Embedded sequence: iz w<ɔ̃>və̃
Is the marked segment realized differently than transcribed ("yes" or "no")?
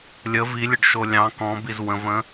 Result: yes